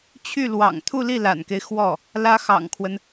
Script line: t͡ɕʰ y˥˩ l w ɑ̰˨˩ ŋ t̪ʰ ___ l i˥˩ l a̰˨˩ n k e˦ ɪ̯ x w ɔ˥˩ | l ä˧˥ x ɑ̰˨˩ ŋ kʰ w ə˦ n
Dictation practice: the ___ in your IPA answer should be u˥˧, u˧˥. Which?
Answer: u˥˧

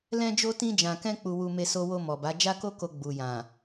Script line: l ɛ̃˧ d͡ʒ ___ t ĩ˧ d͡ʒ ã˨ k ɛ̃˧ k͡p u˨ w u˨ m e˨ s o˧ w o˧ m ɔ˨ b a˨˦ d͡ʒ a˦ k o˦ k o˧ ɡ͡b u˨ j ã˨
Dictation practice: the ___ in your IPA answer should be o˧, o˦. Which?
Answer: o˧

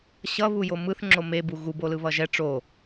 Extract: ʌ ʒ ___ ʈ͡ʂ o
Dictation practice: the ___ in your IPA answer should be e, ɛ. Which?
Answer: ɛ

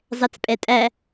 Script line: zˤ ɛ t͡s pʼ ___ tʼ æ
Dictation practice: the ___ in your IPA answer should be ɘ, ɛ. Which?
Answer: ɛ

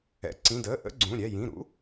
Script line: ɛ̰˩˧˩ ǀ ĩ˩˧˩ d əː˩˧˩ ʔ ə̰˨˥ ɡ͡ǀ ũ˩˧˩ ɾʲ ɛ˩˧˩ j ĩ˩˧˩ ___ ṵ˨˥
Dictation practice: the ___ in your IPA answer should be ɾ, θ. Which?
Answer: ɾ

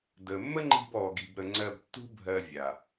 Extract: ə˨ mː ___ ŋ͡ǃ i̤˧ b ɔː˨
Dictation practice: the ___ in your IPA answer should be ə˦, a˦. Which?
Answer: ə˦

